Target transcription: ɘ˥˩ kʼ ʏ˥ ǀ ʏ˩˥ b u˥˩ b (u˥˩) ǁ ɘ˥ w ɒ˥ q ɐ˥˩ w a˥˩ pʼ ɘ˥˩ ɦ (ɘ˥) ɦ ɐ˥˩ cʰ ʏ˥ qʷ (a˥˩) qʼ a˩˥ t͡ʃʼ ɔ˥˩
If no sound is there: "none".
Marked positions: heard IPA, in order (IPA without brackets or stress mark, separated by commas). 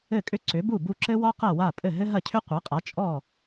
u˥˩, ɘ˥, a˩˥